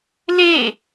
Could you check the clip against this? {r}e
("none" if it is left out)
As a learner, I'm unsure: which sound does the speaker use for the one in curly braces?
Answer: l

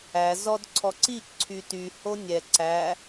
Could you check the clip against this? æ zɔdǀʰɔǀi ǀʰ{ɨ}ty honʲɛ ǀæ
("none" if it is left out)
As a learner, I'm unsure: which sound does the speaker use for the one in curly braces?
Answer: y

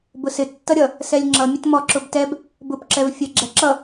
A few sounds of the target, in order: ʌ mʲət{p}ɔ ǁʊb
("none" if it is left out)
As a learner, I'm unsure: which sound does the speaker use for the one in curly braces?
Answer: m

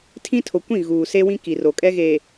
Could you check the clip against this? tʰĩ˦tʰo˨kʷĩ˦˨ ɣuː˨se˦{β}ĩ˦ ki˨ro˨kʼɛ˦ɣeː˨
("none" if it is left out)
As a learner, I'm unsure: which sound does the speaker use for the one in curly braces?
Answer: w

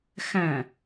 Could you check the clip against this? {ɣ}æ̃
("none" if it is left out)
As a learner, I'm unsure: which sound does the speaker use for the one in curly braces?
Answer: x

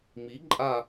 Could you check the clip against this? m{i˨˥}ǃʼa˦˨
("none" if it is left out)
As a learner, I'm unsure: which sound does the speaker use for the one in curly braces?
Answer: i˨˥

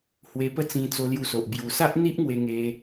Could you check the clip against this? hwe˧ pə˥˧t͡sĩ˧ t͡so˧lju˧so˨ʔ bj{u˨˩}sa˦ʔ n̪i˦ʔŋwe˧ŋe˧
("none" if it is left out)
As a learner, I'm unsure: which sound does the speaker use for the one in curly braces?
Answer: u˨˩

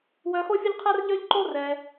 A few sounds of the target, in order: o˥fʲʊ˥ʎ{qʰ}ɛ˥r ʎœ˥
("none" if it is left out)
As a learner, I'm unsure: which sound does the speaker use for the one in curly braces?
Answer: qʰ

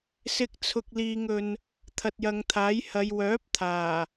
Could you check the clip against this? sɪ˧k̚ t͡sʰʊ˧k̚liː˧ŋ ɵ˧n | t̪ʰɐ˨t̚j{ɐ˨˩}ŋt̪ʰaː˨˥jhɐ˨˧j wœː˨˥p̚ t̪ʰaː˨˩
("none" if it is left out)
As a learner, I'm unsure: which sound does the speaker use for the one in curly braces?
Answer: ɐ˨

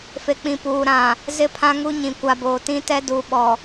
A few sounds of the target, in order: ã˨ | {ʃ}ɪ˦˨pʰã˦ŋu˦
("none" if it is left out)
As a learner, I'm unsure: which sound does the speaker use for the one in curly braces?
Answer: z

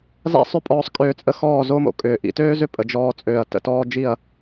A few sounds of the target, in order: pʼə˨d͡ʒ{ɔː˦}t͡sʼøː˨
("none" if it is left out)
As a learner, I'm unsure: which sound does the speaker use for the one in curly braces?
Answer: ɔː˧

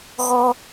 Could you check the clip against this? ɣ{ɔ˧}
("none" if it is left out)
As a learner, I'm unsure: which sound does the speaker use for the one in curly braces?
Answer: ɔ˧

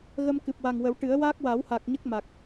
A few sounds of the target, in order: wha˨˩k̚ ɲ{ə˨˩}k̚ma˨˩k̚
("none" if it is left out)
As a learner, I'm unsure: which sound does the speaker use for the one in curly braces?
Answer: ə˦˥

